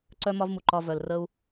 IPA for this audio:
ǀ œ˦ m ɒ˦ v m u˨ ǃ ɒ˧ v œ˨ l r əː˦ u̯

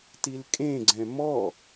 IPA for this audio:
t i l kʼ ẽ ɡ͡ǀ ɛ̃ m ɔ

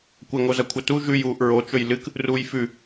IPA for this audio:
kʷ ɐ ŋ o z ɐ kʷʰ ɐ t u ʒ ʉ j uː ʔ ɹ o t͡ʃ ɵ j l ɨ k | r uː j f ʉ

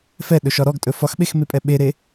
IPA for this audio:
f ɛ ɗ ɵ ʃ ɒ ɾ ɔ ɡ tʼ ɵ f ɒ x ɓ e x m e pʼ ɛ ɓ e ɾ e

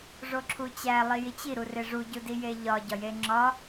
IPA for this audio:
ʐ o ǁʰ u t͡ɕ æ lˠ i j i t͡ɕ i ɾ u r e ʐ u ɟ u d i j e ʎ ɒ ɟ ɒ j e ŋ͡ǁ ɒ

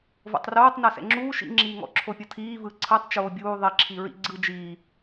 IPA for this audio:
v o̰ tˤ r oː tˤ n ɤ s ɛ̰ ŋ͡ǁ uː ʃ ḭ ŋ͡ǁ iː ŋ ɔ̰ ǁʰ o pʲ ɤ tʰ iː v ɯ ǀʰ ɯ tˤ t͡ʃ oː bʲ uː ðˤ i ǁʰ i ɹ ḭ ɡ͡ǀ ɯ d͡ʒ iː

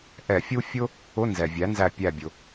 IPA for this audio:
ʔ ɛ˧˩˧ fʲ u˥ fʲ ʊ˥ | ʊ˧˥˧ n z ɛ˩ vʲ æ˩˥ n z æ˧˩ pʲ æ˧˩ bʲ ʊ˩

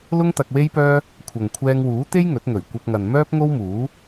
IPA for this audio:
l ʊ˥ ŋ t̪ ɐ˧ k̚ w e˥ j p œː˥ | kʷʰ ɐ˨ ŋ kʷʰ ɛː˧ ŋ w uː˨˥ t̪ e˥ j ŋ ɵ˨˥ t̚ ŋ ɵ˨˩ ɥ kʷ ɐ˧ p̚ ŋ ɐ˨ n m œː˥ p̚ ŋ o˥ w m uː˨˥

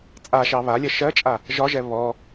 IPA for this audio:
t͡sʼ a ʃ ɑ β a lʲ ɜ ʃ ɜ t͡ʃʼ a | ʒ ɒ ʒ ɛ β ɔ

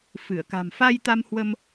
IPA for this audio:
f ɨ˧˩ ə̯ k a̤˨˩ m f a˧ j t̪ a˧ m h w ə˧ m

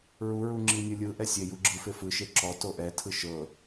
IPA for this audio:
ɹ u ɹ u ŋ͡ǁ i nʲ ɯ lʲ ɯ ʔ ɛ sʲ e j u ɡ͡ǁ ɯ f e f ɯ ʃ e ǁ ɔ t o ʔ ɛ tʰ ɯ ʃ ɤ

